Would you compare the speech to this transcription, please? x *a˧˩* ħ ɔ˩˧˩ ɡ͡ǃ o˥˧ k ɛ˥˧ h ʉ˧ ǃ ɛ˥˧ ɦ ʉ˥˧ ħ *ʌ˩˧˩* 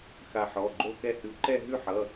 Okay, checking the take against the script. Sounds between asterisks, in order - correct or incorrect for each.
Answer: correct, correct

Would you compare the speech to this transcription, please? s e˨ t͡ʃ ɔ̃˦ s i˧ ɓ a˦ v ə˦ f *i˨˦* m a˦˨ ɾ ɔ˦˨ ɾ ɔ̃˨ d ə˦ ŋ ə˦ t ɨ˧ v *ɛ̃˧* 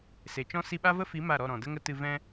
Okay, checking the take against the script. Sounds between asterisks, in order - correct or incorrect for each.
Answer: correct, incorrect

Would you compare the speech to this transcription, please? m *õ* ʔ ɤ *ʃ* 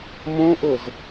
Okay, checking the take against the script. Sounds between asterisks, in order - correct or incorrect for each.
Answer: correct, incorrect

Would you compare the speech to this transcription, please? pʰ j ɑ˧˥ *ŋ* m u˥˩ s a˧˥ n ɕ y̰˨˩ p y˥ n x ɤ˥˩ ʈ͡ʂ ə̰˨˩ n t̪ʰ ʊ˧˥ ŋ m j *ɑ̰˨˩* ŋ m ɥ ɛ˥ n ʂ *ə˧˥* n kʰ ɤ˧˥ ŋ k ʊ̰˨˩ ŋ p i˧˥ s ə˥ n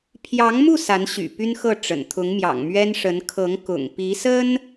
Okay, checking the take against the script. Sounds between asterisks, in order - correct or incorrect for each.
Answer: correct, correct, correct

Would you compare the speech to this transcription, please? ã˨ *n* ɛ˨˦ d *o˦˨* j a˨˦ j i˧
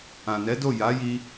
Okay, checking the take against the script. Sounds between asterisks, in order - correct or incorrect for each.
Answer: correct, correct

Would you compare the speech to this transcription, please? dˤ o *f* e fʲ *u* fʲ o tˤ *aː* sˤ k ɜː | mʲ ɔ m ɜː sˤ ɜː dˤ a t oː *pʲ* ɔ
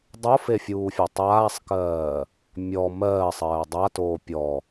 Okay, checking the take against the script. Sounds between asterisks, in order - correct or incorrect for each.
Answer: correct, incorrect, correct, correct

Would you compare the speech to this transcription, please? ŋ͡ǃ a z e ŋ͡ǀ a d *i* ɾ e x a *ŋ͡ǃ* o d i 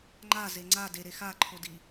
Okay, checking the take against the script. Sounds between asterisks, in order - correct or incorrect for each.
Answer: incorrect, incorrect

